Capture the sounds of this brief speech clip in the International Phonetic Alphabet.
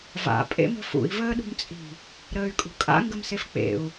v a̰ pʼ ḛ m ə̤ f ṵ i̯ v əː ɗ ṳ m t͡sʼ i̤ | ɾ əː y̯ kʼ ṳ kʼ a̰ ŋ ɡ ə m s e f k͡p ḛ u̯

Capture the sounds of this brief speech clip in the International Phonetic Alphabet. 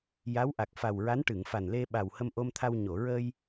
j a˧˥ w ʔ a˨˩ k̚ f a˨˩ w ɹ a˧˥ n ʈ ɨ˨˩˨ ŋ f a˨˩ n l e˧ ɓ a˨˩ w h ə˧ m ʔ o˧ m t̪ʰ a˧ w ɲ o˨˩˨ ɹ əː˧ j

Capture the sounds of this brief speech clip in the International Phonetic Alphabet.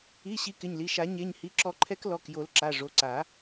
i˩˧˩ ɕ i˨˦ k ɪ˩˧˩ ɲ l i˩˧˩ ʃ a˨˩˦ ɲ e˩˧˩ ɲ h i˩˧˩ ǁ ɔ˨˩˦ ǃʰ ɛ˨˦ k l ɔ˩˧˩ k j o˨˩˦ l ǁ a˩˧˩ ʐ o˩˧˩ ǀ a˨˩˦

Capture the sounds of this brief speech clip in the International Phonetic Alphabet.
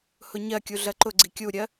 h ʊ ɲ ɜ kʲ u ɮ ɜ ǃ ʊ ɡ͡ǀ i kʲ u ɾʲ ɜ

